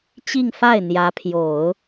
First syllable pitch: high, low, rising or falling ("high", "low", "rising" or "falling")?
falling